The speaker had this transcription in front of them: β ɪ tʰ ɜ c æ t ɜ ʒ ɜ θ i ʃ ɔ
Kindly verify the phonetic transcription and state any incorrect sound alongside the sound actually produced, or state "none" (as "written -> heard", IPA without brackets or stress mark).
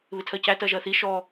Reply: none